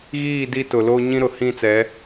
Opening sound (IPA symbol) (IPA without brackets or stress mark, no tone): ɣ